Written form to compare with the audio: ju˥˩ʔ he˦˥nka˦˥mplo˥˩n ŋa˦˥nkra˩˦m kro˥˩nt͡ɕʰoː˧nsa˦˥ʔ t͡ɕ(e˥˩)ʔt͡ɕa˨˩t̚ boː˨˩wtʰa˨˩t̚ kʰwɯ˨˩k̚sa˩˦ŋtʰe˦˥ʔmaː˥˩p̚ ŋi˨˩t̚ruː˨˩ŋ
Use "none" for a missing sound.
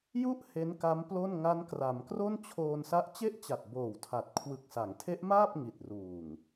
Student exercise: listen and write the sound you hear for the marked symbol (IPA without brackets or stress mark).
e˥˩